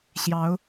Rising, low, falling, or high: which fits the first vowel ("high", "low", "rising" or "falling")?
rising